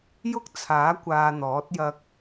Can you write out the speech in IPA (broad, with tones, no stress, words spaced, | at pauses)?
jʊ˥k̚t͡sʰaː˨˥ kʷaː˧n̪ɔː˨˥t̚ jɐ˧k̚